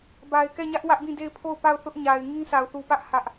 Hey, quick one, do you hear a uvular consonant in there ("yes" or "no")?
no